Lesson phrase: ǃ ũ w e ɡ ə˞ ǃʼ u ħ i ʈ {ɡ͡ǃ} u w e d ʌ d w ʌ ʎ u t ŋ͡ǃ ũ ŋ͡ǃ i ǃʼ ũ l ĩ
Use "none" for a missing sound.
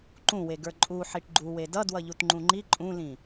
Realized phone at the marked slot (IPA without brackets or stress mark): ɡ͡ǃ